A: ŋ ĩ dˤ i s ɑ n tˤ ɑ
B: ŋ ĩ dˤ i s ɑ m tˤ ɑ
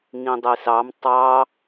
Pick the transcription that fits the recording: B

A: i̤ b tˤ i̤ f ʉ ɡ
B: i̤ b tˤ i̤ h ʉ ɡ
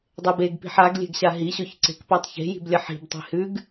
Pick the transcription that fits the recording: B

